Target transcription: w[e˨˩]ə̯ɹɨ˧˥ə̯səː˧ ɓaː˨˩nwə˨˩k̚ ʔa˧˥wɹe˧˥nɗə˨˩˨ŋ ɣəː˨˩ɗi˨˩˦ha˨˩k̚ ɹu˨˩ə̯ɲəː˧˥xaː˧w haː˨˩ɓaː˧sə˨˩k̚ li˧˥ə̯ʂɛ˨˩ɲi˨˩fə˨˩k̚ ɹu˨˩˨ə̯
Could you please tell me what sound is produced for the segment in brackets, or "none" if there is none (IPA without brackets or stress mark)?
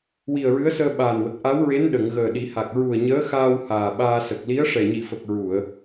i˨˩